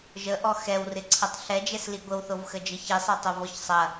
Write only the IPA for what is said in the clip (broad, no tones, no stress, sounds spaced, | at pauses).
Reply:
ʒ ə ʔ ɔ x ɛ w r ɪ ǀʰ ɐ tˤ ɬ ɛ d͡ʒ ɛ s l i ɡʷ ə w θ o v x ə d͡ʒ ə ç i sˤ ɛ tˤ o v ɔ ç sˤ ɐ